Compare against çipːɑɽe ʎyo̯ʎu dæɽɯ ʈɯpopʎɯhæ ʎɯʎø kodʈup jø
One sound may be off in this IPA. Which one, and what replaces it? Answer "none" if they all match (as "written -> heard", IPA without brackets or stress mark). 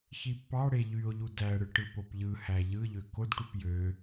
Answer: none